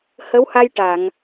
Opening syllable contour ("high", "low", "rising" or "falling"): rising